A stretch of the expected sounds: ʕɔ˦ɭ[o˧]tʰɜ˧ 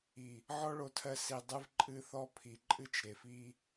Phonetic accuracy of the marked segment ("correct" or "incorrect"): correct